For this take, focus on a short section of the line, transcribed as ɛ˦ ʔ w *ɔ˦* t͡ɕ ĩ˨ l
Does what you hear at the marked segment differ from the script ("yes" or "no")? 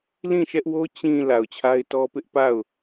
yes